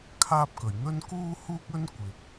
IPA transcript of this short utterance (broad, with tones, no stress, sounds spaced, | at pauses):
kʰ aː˧ p̚ k ɵ˨˩ ɥ n̪ ɵ˧ n k uː˧ h uː˧ k̚ ɵ˧ n kʷ ɪ˨ k̚